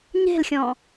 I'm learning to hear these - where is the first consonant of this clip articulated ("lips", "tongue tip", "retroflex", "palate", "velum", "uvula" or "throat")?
palate